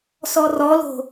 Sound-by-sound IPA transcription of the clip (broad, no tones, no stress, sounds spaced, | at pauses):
s ɔ r ɔ l o̤